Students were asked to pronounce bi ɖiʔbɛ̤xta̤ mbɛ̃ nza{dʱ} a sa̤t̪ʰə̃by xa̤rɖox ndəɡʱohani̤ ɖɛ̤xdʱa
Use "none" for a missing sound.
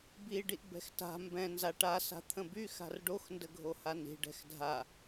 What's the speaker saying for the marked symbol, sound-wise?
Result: ʈ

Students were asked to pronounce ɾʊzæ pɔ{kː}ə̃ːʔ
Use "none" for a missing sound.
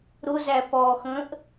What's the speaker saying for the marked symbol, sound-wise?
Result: x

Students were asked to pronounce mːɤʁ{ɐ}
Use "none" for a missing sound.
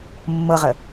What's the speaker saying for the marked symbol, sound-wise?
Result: ə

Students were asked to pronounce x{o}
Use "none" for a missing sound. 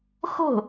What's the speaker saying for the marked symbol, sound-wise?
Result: o̤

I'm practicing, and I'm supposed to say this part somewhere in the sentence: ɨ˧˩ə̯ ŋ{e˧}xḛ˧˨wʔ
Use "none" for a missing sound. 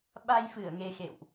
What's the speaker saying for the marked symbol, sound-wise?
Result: e˧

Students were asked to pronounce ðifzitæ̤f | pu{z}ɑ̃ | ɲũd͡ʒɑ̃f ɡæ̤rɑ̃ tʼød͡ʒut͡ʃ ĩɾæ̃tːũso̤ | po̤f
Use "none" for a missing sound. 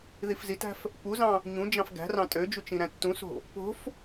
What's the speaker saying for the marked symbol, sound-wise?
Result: z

